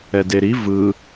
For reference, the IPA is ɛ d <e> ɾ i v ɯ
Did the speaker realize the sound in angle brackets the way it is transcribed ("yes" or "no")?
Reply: yes